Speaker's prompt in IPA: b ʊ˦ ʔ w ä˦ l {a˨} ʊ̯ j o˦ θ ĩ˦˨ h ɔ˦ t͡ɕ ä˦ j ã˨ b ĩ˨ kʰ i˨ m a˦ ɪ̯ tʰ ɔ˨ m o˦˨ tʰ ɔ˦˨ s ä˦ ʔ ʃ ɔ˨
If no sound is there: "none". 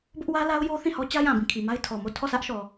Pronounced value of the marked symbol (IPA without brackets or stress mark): a˦